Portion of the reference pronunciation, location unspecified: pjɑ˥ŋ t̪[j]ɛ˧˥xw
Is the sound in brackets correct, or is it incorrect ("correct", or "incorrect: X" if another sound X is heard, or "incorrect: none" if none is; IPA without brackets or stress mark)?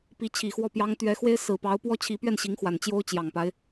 incorrect: ɥ